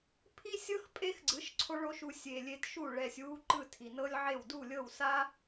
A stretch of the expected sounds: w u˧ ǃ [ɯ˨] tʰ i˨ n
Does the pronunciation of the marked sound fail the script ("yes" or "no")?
yes